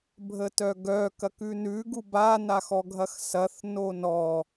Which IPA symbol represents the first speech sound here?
bʱ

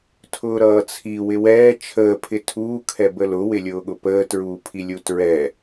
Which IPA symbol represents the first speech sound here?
tʰ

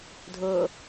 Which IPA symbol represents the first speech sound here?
dʱ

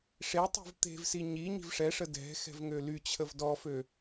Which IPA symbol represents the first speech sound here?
ʂ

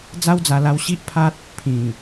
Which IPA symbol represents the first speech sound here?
d͡z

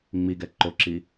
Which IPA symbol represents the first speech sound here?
ŋ͡m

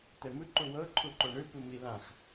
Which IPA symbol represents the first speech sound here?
t̪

